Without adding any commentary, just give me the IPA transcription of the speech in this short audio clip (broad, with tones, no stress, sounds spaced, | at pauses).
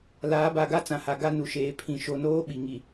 l aː˨˦ b a˨ ɡ a˦ t͡s ã˨ h a˨ ɡ a˦ n u˨ ʃ eː˨˦ pʰ ĩ˨ ʃ o˨ n oː˦ ɓ i˨ ŋ i˨